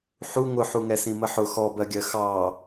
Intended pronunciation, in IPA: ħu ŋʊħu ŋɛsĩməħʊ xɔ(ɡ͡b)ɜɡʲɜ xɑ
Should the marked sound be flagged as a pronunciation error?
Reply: yes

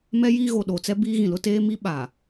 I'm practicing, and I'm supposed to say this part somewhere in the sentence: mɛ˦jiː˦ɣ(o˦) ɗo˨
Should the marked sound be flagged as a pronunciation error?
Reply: yes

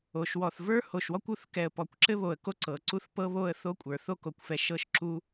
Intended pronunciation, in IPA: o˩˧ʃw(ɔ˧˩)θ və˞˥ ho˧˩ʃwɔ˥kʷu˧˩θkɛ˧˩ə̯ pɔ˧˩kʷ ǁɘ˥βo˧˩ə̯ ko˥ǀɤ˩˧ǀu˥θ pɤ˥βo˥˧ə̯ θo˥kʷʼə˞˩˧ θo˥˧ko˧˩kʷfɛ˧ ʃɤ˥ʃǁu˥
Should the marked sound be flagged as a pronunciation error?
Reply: no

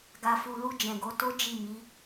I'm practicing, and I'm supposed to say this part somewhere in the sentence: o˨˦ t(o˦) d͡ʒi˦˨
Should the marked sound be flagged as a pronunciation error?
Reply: no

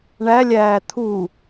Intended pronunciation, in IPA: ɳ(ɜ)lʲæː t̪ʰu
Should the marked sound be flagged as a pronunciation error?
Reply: yes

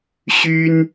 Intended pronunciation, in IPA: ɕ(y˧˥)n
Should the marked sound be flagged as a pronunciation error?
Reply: yes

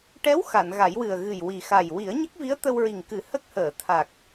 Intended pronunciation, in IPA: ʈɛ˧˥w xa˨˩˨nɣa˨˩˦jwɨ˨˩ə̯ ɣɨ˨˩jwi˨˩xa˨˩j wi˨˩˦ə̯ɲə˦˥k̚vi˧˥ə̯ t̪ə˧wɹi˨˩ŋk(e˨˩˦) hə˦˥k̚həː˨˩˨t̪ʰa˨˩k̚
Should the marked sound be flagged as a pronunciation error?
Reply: yes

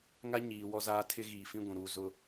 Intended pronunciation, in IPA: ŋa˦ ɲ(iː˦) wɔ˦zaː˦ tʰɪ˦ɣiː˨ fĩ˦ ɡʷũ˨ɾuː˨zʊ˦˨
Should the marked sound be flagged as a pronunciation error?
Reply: yes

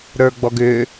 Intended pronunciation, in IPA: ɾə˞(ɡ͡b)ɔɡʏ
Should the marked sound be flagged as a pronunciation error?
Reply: no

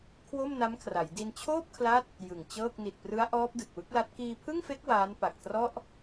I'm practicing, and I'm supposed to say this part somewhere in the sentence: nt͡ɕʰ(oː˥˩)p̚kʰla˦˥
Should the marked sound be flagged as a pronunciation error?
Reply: no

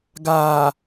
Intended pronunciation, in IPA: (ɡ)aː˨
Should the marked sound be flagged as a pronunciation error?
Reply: no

